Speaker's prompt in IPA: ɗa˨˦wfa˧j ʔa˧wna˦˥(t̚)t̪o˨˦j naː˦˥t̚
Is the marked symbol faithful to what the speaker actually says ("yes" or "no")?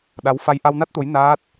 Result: yes